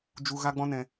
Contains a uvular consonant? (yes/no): no